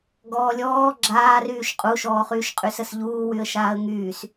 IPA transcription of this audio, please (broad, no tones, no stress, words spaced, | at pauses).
ɡɔːlʲɔː ɡ͡ǁaːryːʃ qʼuʃɔːχyːʃ qʼysəsʎuː wyə̯ʃaːə̯ŋyːs